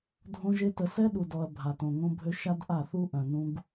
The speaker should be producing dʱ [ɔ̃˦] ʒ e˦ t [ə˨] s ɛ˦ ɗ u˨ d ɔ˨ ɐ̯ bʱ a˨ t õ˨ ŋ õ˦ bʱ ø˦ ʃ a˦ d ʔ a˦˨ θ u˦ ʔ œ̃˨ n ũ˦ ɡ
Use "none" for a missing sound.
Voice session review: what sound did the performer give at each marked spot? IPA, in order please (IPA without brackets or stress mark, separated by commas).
õ˦, ə˨